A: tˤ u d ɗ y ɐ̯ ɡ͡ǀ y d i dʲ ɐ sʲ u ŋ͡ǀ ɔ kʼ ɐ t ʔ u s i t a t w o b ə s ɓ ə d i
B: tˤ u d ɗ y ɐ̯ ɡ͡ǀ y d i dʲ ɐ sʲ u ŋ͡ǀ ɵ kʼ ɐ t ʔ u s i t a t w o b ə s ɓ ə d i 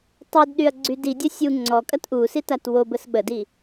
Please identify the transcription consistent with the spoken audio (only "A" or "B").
A